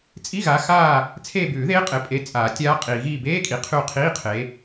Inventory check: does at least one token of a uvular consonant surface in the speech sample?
yes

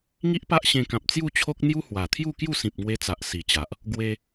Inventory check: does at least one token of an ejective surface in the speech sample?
no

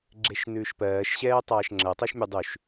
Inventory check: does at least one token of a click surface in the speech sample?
yes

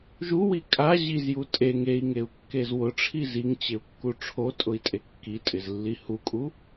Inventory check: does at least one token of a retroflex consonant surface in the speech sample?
yes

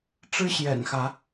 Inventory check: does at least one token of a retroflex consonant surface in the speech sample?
yes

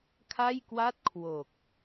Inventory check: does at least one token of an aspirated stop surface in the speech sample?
yes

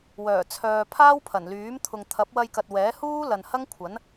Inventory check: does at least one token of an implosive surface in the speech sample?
no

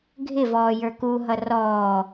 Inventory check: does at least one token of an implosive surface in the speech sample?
no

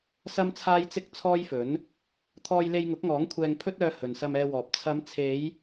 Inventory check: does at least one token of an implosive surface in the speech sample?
no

